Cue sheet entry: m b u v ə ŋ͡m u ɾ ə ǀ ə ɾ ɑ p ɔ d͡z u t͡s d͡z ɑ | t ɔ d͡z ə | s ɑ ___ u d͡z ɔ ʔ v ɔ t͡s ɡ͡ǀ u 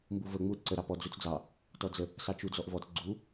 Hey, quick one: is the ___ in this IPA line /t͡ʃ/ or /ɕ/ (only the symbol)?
t͡ʃ